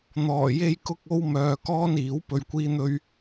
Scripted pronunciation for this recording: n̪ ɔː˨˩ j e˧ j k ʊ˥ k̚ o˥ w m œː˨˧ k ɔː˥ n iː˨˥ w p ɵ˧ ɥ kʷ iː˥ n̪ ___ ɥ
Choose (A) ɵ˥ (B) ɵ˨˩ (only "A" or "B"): A